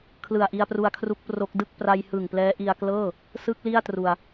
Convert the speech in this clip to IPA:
kʰ l ɯ˨˩ a̯ ʔ i˧ a̯ p r u˧ a̯ kʰ r u˦˥ k̚ p r o˦˥ k̚ d ɯ˥˩ k̚ p r a˧ j h ɯ˨˩ ŋ p l ɛː˦˥ ʔ i˧ a̯ k l ɤː˥˩ | s ɯ˦˥ k̚ l i˥˩ a̯ t r u˧ a̯

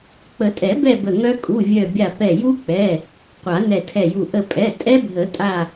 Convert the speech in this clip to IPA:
k͡p ə˨˩˦ tʼ ɛ˨˩˦ b ɛ˥˧ b ə˧˩ ŋ œ˦˥ kʼ u˩˧˩ vʲ œ˧˩ bʲ a˧˩ p ɛ˧˩ j u˦˥ k͡p ɛ˩˧˩ | qʷ a˨˩˦ n ɛ˧˩ tʰ ɛ˧˩ j u˧˩ ʔ ə˧˩ pʼ ɛ˩˧˩ tʼ ɛ˦˥ bʱ ə˨˩˦ tʼ a˧˩

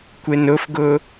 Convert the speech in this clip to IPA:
kʷ e n ʊ f ɡ ʊ

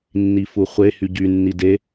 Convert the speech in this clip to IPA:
nː i f u χʷ e h y ɟ y nː i d e

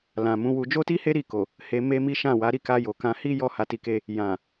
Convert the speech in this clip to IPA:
l ã˨ m ũ˨˦ w u˧ d͡ʒ o˦ t i˦ h e˦ ɾ i˦˨ k o˨ | h e˧ m e˦ m i˦ ʃ ã˦˨ w a˨˦ ɾ i˦˨ k a˧ j o˨ k ã˧ h i˦ j ɔ˦ h a˧ t i˧ k e˧ | j ã˨

